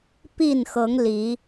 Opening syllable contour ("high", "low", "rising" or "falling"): falling